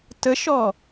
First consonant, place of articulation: alveolar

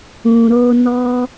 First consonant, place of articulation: alveolar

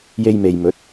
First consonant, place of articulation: palatal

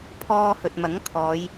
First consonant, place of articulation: labial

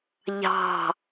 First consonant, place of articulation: palatal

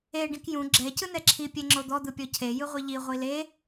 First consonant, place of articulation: retroflex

